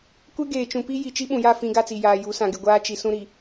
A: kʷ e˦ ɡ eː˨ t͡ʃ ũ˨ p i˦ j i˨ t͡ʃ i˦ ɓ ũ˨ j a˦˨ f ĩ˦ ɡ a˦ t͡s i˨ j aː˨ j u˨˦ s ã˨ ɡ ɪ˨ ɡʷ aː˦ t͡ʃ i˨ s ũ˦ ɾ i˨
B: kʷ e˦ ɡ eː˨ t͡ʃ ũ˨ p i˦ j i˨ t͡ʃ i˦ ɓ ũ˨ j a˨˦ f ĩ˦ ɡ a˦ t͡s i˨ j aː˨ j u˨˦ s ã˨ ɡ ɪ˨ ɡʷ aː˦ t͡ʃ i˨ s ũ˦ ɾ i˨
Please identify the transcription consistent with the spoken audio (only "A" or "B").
A